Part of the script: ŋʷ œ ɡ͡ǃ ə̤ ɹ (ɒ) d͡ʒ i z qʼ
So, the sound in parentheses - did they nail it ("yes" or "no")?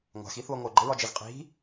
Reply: yes